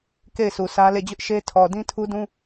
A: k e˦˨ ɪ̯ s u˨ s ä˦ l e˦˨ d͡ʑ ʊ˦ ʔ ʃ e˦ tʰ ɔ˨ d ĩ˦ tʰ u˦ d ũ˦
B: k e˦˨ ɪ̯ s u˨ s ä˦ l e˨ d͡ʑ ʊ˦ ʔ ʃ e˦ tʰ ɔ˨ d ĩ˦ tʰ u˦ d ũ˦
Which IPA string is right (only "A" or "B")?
A